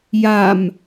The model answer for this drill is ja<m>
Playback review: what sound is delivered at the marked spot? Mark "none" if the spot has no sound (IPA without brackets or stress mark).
m